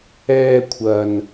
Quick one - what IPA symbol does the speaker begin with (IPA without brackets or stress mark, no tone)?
ɛː